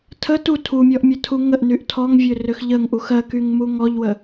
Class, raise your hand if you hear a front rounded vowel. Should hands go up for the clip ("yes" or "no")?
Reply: yes